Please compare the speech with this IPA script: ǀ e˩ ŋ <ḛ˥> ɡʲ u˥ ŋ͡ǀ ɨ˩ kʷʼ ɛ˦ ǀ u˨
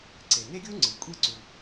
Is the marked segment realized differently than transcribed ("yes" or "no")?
yes